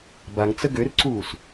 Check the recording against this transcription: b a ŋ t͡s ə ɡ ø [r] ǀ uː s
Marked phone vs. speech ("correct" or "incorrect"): correct